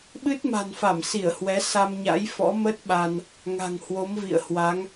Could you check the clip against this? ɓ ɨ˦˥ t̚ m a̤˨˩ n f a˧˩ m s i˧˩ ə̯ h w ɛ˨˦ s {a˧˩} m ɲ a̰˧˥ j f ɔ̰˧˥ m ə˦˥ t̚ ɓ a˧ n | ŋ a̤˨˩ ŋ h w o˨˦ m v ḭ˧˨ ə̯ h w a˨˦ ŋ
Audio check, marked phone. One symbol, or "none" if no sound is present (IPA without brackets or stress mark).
a˧